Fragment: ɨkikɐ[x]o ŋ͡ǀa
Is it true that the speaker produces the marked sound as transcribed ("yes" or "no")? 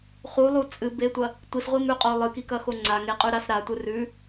yes